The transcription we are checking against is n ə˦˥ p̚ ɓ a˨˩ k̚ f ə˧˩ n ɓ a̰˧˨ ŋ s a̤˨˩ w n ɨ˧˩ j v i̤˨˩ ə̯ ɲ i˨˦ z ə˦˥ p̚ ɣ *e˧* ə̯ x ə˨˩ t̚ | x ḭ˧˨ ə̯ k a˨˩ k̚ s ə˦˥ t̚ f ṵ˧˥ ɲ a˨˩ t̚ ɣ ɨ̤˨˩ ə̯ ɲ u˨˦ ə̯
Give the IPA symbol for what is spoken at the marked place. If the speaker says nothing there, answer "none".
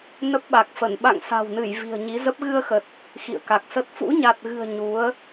ɨ˧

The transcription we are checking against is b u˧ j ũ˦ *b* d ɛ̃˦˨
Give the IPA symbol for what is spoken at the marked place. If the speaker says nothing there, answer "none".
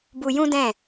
none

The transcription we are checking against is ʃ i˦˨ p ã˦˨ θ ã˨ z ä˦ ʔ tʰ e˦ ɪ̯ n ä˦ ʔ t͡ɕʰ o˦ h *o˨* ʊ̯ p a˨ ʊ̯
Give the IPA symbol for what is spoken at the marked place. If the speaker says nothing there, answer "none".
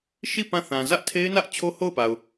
o˦˨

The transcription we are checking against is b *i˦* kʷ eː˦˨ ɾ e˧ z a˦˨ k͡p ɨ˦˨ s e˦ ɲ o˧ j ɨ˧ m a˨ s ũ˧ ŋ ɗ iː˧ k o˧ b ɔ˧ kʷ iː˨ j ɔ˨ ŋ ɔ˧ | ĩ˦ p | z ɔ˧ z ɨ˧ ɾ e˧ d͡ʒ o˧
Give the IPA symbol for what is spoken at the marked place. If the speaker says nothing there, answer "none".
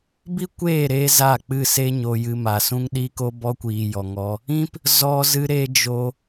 i˦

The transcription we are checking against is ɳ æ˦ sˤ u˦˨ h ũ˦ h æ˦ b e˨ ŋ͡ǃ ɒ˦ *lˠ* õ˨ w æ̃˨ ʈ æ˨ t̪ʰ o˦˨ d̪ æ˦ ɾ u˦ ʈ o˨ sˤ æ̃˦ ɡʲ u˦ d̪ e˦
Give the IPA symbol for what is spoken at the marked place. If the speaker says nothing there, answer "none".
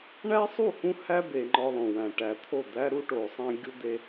lˠ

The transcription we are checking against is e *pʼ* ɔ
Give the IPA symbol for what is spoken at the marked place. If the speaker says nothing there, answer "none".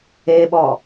ɓ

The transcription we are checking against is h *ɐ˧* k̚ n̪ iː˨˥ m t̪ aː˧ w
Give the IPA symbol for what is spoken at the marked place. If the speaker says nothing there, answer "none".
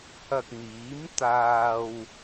ɐ˧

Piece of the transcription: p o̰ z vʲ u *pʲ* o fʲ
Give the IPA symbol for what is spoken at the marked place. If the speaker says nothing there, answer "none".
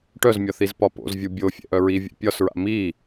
bʲ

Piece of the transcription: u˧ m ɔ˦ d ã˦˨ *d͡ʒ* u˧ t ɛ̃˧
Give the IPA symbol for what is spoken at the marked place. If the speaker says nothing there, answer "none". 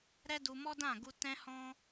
ɡ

